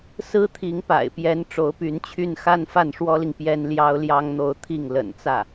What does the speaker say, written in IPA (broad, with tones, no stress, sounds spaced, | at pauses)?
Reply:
s ɹ̩˥ t̪ʰ i˧˥ ŋ p a̰˨˩ ɪ̯ p j ɛ˧˥ n ʈ͡ʂ o˧˥ ʊ̯ p y˧˥ n t͡ɕʰ y˥˩ n x a˥ n f a˥˩ n ʂ w ɔ˥ l i˨ ŋ p j ɛ˥ n l j ɑ˥ ʊ̯ l j ɑ˥ ŋ n̪ o˥˧ ʊ̯ t̪ʰ i˥˩ ŋ l ə̰˨˩ n t͡s ä˥˩